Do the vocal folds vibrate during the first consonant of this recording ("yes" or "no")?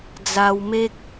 yes